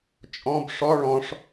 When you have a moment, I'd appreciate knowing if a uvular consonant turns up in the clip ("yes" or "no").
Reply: no